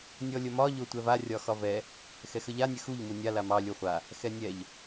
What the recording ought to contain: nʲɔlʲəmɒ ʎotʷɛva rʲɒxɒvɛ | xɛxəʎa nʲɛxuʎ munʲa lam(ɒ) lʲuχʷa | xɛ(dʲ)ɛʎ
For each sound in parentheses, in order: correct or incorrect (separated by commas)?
incorrect, incorrect